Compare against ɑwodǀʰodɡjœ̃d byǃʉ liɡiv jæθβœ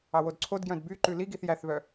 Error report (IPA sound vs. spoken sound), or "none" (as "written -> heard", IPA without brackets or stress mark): v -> θ